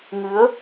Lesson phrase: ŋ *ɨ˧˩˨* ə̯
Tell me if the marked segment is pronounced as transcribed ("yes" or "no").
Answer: no